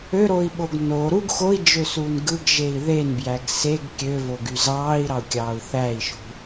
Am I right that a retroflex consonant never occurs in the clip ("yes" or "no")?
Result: yes